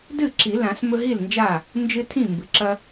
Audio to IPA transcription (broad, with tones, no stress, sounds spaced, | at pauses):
d ɨ˥˩ ǁ i˨˩˦ l ã˨˩˦ s m ɵ˦ ɦ i˥˩ l n d͡ʒ a˥˩ | n d͡ʒ ɨ˦ tʰ ĩ˥˩ m b ɨ˩ ǁ ɐ˦